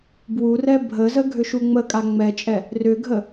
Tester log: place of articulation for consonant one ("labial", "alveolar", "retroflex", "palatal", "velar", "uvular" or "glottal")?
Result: labial